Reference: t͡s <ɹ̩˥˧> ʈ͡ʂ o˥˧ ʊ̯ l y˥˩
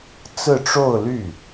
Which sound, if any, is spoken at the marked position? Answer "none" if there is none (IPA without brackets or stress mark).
ɹ̩˥˧